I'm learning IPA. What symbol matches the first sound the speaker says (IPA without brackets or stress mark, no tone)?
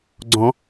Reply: ɡ͡ǀ